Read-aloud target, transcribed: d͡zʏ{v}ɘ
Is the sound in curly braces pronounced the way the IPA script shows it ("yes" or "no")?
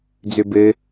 no